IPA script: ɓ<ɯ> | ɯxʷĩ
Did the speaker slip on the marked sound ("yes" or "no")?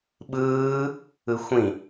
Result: yes